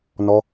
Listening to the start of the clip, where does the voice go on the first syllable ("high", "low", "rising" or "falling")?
high